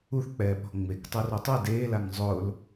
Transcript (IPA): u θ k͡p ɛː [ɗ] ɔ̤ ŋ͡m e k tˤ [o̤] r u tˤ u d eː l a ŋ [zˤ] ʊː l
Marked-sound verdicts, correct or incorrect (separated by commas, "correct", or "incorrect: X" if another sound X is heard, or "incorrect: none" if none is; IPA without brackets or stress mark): incorrect: ɓ, incorrect: o, correct